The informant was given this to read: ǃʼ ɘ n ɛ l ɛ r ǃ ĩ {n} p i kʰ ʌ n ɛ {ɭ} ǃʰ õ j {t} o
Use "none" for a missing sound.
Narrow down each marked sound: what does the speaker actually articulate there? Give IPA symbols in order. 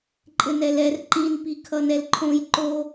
n, l, ǃ

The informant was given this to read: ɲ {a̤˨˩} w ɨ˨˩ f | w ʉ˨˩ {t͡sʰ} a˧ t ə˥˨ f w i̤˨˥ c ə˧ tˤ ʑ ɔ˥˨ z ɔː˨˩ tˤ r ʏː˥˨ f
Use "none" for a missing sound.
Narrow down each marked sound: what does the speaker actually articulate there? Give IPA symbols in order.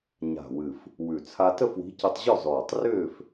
a̤˨˩, t͡sʰ

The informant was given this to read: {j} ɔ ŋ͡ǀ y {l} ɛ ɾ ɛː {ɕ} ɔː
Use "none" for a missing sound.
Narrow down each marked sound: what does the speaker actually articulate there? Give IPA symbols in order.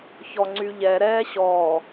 ç, ʎ, ɕ

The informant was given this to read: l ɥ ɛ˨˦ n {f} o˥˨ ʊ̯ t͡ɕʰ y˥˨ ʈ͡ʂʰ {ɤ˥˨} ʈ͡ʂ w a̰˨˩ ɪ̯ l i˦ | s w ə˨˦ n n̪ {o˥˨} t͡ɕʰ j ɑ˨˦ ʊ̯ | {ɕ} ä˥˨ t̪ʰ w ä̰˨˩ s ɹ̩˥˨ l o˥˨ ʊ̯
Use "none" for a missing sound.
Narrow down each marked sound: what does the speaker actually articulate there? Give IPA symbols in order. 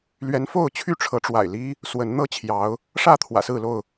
f, ɤ˨˦, ɤ˥˨, ʂ

